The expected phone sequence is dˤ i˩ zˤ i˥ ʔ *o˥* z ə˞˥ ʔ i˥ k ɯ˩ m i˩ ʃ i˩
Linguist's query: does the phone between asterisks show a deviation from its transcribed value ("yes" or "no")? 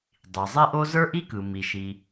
no